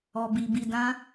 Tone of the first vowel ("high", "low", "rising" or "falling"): low